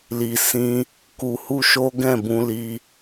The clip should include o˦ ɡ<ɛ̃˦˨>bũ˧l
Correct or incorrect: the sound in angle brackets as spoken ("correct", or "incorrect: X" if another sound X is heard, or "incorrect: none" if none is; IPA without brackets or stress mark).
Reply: correct